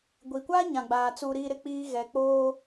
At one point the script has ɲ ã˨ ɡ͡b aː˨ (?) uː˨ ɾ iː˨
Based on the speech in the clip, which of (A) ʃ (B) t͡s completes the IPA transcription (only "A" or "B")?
B